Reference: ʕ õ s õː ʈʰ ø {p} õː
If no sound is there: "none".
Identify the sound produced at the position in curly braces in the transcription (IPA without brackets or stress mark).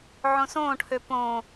p